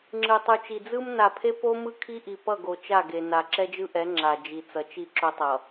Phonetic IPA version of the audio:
ŋ͡ǁ ɯ˨ tˤ u˨ t͡ʃ i˨ d͡z ɯ˦ m n a˨ pʰ e˦ p o˦ m ɯ˦ kʰ i˦ ʔ i˨ p ʌ˦˨ ɡ o˨ t͡ʃ a˦˨ ɡ e˨ n a˨ ǁ ɛ˦ d͡ʒ ɯ˦ ʔ ɛ˨˦ ŋ͡ǁ a˨ d͡ʒ i˨ t͡s ʌ˨ t͡ʃ i˦˨ ǁ o˦ tˤ ʌ˨

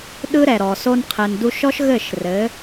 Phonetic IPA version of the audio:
ɗ ɯ˦ ɾ ɛ˨ ɾ ɔ˨ s o˧ n qʰ ɘ˨ n d u˧ ʃ ɔ˦ ʃ ɣ ɘ˦˨ ʃ r ɘ˨˦

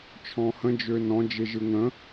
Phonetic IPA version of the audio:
t͡ʃʰ ɔ̃ h ə̃ d͡ʒ ø n ɔ̃ d͡ʒ e ʒ ɯ ŋ ə̃

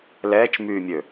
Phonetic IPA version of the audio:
l ɛː t͡ʃ m yː mʲ ø

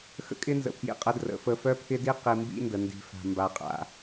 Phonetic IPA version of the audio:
x ə̰˦ kʼ ɪ˦ n z ə̰˨ pʰ j ḭ˨ qʼ ə˨˦ d r ə̰˨˦ f ə˦ f œ˦ pʰ ɪ˦ d i˦ q i˨ m b ḭ˦ n d ə˨ n d i̤˨ f a̤˨ m b a˨ qʼ a̰˨

